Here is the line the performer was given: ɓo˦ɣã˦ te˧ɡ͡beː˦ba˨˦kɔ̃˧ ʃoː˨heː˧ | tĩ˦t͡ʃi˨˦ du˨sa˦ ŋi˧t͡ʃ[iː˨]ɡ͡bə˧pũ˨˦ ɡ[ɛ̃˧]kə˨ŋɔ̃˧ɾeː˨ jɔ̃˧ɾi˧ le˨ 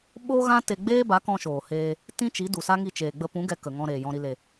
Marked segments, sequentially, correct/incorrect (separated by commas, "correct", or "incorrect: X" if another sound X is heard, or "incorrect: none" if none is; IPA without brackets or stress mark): incorrect: eː˨, incorrect: ɛ˧